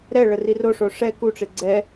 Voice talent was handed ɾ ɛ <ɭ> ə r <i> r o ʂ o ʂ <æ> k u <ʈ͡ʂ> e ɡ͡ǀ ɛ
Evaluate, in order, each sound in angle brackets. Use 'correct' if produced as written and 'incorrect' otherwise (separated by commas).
correct, correct, incorrect, correct